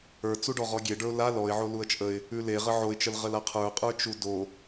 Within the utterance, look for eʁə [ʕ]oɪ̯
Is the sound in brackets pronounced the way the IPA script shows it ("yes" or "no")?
yes